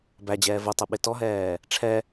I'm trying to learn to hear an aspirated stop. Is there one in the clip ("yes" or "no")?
yes